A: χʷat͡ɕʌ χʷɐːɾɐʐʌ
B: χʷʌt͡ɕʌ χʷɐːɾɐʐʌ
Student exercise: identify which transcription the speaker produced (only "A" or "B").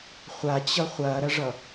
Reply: A